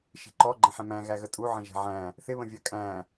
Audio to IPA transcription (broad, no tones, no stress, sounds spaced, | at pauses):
ʃ i̤ ǃ ɔ ɡ͡ǃ ə̃ ħ ɛ̃ m æ̃ ɣ æ ɣ ə tʼ u ʕ ə̃ ʒ ɛ̤ ʕ æ̃ | θ ɪ β ə̃ vʲ ɜ kʼ æ̃